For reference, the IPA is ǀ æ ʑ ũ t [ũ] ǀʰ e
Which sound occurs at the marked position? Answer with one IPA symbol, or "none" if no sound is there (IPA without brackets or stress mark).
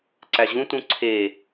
ũ